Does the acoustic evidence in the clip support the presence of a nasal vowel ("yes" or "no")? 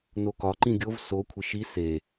yes